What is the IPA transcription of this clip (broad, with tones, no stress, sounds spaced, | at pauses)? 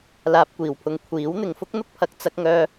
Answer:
l aː˧ p̚ kʷ iː˨˩ w pʰ ʊ˧ ŋ kʷʰ iː˨˥ w n̪ ɪ˨ ŋ f ʊ˥ k̚ n̪ ʊ˥ k̚ pʰ ɐ˨ k̚ t͡s ɐ˥ k̚ ŋ œː˥